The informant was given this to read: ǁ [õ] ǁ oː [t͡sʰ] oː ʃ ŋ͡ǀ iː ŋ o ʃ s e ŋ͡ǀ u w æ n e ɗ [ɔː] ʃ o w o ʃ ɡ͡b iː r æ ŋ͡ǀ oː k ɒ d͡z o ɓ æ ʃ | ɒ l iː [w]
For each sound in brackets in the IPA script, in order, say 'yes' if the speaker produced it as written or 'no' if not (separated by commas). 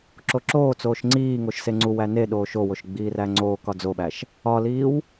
no, no, no, yes